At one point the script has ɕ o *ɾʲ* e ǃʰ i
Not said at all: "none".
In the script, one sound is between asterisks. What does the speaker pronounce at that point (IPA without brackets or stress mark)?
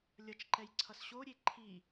ɾʲ